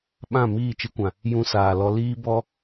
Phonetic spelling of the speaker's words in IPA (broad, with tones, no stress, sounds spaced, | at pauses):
ɓ ã˦˨ m iː˦˨ t͡ʃ ɨ˧ kʷ ã˨ | j ũ˧ s aː˨ l ɔ˧ l iː˦ b ɔ˦